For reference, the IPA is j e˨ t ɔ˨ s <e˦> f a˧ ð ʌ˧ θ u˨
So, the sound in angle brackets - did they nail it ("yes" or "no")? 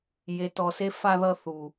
yes